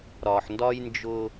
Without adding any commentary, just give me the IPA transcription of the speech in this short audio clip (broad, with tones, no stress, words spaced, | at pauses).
ɾɒ˨ħ ndɒ˦jnd͡ʒʊ˦